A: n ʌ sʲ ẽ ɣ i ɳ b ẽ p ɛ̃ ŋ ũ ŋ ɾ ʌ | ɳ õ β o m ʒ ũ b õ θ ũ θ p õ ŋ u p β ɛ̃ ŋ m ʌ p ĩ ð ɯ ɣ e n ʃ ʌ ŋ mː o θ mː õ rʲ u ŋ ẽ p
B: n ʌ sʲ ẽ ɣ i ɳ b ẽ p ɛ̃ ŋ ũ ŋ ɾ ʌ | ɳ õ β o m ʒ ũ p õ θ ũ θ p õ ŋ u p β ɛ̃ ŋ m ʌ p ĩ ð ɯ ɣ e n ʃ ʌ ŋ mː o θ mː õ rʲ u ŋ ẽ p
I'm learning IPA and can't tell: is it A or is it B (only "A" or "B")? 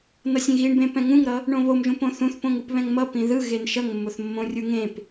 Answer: B